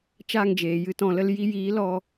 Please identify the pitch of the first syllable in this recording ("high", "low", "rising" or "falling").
falling